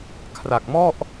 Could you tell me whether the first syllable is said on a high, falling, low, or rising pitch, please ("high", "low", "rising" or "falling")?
low